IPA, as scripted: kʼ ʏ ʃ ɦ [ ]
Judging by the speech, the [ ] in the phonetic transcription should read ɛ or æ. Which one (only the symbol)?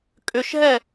ɛ